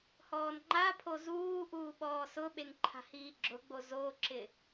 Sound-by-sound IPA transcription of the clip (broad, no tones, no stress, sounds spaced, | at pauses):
h ɔː n ŋ͡ǃ a pʰ o z uː ʔ uː ɓ ɔː s ʊ ɓ e ŋ ǃʰ a̤ h iː ɡ͡ǁ ʊ ɡ͡b o z o ǁ ɪ